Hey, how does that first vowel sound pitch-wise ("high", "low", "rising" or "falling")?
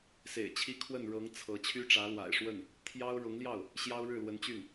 low